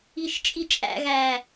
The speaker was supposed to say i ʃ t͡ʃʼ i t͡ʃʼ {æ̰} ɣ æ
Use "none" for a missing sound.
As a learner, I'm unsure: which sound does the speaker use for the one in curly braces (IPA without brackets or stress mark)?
æ̰